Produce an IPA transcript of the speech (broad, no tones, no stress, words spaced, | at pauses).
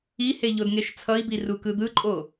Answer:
ihe ʎodŋeʃt͡sʰʌi̯bi rukɯd̪ɯǃʼo